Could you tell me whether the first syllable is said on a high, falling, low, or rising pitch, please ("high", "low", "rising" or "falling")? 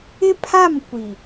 high